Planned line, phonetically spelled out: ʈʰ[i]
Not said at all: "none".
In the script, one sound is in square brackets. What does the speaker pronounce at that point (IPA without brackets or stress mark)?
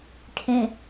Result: ĩ